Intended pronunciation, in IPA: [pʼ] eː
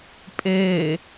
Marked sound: correct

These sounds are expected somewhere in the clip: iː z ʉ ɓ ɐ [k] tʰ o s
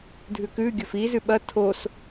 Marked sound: incorrect: none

